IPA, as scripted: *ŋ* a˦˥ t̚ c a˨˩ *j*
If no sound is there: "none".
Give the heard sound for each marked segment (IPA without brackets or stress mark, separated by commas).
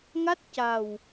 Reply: ŋ, w